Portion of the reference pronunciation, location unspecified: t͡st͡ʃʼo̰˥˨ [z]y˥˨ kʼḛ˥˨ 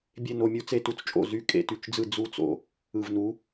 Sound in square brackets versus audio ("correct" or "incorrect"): correct